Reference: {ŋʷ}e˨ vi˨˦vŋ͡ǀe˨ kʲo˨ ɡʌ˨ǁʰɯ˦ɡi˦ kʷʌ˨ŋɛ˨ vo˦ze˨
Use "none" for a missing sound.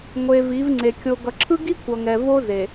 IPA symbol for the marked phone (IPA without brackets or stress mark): ŋʷ